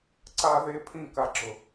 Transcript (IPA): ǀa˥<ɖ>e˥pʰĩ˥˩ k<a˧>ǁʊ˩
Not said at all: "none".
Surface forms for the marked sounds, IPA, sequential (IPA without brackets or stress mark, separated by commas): ð, a˧